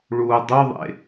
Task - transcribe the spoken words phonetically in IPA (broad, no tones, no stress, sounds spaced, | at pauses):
ɭ uː dˤ ø ðˤ ḛ